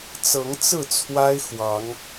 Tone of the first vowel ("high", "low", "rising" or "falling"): rising